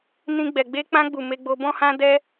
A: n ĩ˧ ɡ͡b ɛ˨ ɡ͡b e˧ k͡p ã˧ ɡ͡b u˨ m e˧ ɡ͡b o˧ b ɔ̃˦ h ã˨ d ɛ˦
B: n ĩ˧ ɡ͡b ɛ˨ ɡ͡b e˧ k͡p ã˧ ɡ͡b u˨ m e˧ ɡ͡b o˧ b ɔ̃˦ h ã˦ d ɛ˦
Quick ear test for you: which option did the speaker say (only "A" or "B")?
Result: B